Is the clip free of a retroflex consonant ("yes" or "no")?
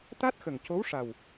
no